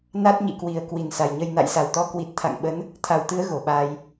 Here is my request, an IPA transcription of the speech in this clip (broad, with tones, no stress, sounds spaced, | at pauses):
n a˦˥ t̚ ɲ ḭ˧˨ k w i˨˩ ə̯ k w i˧˩ n s a˨˩ j ɲ ə˧ j n a̰˧˨ j s a˧˩ w t̪ ɔ˨˦ k w i˨˩ t̚ t̪ʰ a̰˧˨ ŋ ɓ ə˨˦ n | t̪ʰ a˧˩ w t̪ ɨ˨˦ ə̯ ɣ o˧˩ ɓ aː˧ j